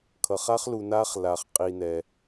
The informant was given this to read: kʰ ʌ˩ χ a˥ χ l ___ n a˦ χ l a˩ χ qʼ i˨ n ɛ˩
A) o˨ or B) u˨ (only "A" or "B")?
B